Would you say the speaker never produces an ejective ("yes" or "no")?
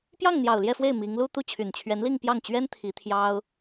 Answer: yes